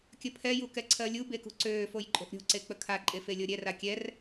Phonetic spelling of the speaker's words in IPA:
kʲəpʰɛju kɛǀʰɜlʲube kṳǀøːfoj ǃʼo̤ʔɾʲo̤ǀe k͡pəkʰaǃʼe felʲɤɾʲɛra kʲɛr

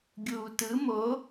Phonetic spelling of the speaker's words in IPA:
ɡʲuːtɯ mo

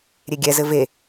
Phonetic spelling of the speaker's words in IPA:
ɾʲeɡʲɛzɘ ve

